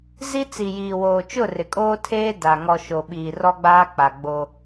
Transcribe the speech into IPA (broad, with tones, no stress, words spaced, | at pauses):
zi˦t͡si˨jiː˨woː˨ t͡ʃʊ˦˨rɪ˨kʼoː˦tʰeː˦ da˨ ŋɔ˨ ʃo˨ɓiː˨rɔ˦ɡ͡baː˦ k͡pa˨ɡ͡bo˦